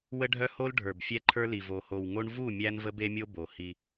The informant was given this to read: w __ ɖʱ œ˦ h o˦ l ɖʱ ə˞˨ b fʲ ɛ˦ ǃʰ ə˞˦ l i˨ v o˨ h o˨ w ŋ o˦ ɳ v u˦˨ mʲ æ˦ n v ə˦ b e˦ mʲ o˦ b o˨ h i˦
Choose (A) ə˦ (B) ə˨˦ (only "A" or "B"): A